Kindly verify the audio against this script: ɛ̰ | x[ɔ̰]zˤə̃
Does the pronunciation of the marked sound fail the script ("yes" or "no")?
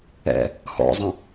no